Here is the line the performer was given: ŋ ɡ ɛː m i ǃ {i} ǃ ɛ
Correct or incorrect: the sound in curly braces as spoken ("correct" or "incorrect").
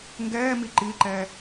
correct